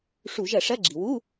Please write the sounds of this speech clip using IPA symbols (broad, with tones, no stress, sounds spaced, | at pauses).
ʂ u˧˩˧ ʒ ɐ˧˩˧ ʂ ɐ˧˥˧ ɡ͡ǁ i˩ w u˧˥˧